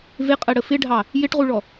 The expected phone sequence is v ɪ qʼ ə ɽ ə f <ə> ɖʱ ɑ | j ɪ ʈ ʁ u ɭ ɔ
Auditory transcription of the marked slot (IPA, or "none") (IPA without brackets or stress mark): ɪ